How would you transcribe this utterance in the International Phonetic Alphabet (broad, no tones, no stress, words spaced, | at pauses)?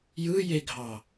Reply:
jɯjeɡʱɑ